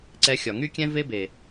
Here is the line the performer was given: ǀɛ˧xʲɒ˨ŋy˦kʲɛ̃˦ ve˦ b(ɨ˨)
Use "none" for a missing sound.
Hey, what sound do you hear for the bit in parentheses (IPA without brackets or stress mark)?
e˨